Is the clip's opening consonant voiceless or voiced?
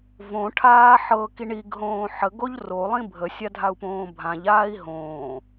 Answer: voiced